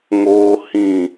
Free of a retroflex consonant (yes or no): yes